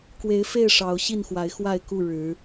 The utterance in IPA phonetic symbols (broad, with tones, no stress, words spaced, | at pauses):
kwe˨˦ɪ̯fe˥˨ɪ̯ ʂɑ˨˦ʊ̯ɕi˥˨nxwa˨˦ɪ̯ xwa˥˨ɪ̯ku˥˨ ɻɻ̩˨˦